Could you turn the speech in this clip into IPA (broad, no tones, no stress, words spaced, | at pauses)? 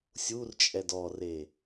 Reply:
sʲurt͡ʃʼɛd ɔre